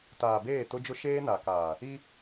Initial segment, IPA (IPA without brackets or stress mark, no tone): t